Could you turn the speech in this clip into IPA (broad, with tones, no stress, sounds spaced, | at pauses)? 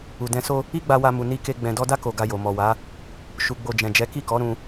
u˨ d ɛ̃˧ s o˦ | i˦ ɡ͡b a˧ w a˧ m u˨ n i˧ k e˧ ɡ͡b ɛ̃˨ d ɔ˧ d a˦ k o˧ ɡ a˧ j o˨ m ɔ˨ w a˨˦ | ʃ u˨ ɡ͡b o˨ d͡ʒ ɛ̃˨ d͡ʒ ɛ˨˦ k i˦˨ k ɔ˨˦ ɾ ũ˧